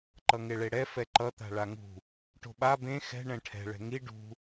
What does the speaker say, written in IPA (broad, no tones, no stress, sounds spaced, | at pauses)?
ǃ ʌ ŋ e ɭ e ɽ ɛ f ɛ ǃ ʌ t̪ a̤ ɭ a ŋ ṳ | ʈ o̤ ɓ a b ẽ x ɛ̤ ɳ ɛ̃ ʈʰ ɛ̤ ɭ ɛ̤ ŋ i ɖ ṳ